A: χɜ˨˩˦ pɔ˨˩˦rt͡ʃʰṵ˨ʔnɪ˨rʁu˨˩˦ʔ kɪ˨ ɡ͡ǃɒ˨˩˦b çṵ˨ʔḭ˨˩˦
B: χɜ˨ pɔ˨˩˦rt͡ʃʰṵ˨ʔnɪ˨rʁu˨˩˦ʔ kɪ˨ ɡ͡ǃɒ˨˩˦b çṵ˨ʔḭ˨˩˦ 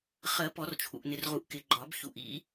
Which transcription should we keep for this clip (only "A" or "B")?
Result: A